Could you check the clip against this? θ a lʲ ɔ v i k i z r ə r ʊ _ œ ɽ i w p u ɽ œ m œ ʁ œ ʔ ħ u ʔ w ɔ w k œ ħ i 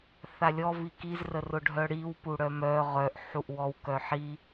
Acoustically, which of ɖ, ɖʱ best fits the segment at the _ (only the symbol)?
ɖʱ